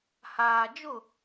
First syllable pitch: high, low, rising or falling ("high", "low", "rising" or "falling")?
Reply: low